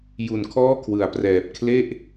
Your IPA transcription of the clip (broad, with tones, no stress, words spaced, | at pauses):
ju˨˩nkʰɔː˥˩kʰwɯ˩˦a̯prɛː˨˩p̚ kʰle˥˩ʔ